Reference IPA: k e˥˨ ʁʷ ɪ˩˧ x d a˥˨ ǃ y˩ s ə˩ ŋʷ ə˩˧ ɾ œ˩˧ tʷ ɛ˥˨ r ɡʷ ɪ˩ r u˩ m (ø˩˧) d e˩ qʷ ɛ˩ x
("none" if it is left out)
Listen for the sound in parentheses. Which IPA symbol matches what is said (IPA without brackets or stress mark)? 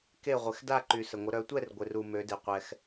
ø˩˧